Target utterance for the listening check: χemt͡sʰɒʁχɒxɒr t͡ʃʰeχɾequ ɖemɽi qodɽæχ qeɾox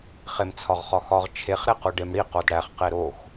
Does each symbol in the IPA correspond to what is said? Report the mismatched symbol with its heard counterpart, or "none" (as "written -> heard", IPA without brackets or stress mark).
r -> ʁ